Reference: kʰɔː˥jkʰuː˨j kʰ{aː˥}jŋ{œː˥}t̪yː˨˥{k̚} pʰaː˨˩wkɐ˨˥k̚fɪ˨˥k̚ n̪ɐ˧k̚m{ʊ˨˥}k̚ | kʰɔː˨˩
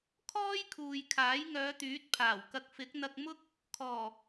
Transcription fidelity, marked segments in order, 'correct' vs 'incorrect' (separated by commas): incorrect, incorrect, incorrect, incorrect